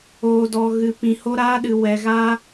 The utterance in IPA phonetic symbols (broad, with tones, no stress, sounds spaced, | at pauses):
oː˨ d ɔ˨ ɣ ɨ˨ p ĩ˨ h o˧ ɾ aː˧ ɗ ɨ˨ w ɛ˨ ɣ a˧